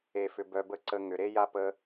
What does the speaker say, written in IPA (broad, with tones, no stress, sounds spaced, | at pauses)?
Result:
e˧ f ʏ˧ b œ˧ b ə˦ ǀ ə˧ ŋ ʏ˨ ɾ e˦ j a˦ p ə˧